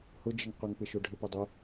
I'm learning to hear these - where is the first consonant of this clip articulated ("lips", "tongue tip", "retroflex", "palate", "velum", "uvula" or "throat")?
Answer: throat